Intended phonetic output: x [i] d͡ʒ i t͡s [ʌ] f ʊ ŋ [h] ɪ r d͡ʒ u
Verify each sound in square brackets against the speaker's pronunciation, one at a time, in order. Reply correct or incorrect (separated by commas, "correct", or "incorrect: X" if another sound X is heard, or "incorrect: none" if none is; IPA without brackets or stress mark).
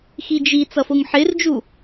correct, correct, incorrect: ħ